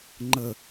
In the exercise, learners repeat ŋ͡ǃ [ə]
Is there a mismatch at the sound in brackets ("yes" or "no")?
no